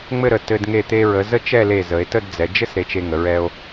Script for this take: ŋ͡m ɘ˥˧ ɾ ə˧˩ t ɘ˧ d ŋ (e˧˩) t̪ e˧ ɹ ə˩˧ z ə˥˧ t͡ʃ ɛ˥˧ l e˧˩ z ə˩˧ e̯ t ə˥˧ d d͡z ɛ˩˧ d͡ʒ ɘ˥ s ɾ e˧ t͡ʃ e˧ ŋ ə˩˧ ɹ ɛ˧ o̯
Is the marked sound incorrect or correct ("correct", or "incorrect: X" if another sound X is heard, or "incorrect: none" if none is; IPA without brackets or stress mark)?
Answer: correct